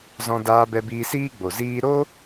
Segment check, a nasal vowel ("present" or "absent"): present